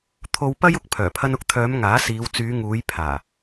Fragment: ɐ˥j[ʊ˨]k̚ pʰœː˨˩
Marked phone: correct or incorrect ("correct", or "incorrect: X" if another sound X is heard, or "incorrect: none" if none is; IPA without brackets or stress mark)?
incorrect: ʊ˥